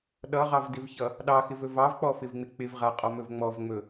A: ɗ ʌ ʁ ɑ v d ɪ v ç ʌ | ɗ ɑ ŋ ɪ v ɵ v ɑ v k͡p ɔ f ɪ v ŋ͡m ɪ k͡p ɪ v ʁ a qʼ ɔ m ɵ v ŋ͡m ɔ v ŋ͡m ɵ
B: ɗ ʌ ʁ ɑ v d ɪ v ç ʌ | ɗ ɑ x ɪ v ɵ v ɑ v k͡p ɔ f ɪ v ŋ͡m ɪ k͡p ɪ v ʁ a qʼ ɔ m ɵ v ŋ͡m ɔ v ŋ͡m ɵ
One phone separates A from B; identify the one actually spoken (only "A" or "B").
B